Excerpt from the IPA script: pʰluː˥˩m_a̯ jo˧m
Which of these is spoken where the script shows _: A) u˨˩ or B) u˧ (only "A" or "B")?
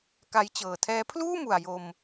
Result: A